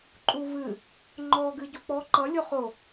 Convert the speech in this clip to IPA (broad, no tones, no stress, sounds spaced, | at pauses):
ǃʼ u v ɨ | ŋ͡ǃ ɔ ɡ ɨ ɟ u k͡p ɔ ǃ ʌ lʲ o χ o